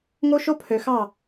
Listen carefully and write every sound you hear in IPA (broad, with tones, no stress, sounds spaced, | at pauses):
ŋ o˦ ʃ o˦ pʰ ø˨ x ɑ˦˨